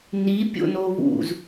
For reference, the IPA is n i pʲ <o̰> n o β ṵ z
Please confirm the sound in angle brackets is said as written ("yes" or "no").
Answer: yes